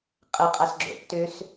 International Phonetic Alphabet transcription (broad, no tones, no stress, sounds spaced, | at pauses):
qʼ ə qʼ a s ɡ͡ǁ o̰ p t ø s